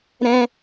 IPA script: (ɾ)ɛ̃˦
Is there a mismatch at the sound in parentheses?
no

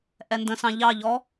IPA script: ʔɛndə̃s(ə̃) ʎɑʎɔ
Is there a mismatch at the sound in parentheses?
yes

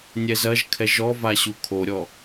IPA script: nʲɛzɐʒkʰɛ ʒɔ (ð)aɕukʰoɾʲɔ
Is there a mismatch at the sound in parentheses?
yes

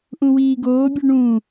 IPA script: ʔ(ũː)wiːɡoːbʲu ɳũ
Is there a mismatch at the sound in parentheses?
yes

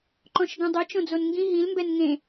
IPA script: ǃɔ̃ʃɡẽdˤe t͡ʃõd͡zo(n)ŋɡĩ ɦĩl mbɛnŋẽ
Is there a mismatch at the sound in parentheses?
no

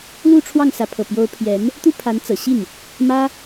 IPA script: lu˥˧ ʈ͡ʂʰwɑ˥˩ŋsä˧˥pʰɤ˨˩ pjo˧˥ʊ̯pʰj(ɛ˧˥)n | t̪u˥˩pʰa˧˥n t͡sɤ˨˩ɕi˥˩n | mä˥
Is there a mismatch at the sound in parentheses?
no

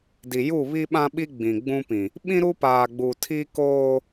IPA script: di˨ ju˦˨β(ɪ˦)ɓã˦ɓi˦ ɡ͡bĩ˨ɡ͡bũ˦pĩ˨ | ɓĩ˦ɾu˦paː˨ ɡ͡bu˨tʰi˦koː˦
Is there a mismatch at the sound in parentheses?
yes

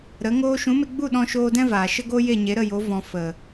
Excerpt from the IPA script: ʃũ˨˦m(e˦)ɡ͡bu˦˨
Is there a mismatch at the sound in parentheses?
yes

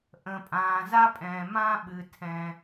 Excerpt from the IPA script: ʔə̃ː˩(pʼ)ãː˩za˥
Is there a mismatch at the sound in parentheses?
no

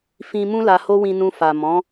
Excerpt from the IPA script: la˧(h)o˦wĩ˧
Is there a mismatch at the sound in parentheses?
no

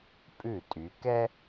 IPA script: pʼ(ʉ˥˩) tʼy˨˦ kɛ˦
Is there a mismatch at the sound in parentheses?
no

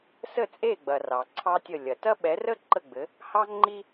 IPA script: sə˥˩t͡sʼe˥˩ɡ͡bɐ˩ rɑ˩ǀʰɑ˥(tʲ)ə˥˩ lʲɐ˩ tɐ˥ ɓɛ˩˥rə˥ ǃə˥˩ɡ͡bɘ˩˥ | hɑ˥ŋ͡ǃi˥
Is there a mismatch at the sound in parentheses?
no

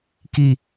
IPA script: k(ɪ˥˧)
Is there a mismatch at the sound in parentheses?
yes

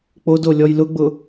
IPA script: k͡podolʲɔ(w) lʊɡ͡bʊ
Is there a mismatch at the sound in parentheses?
yes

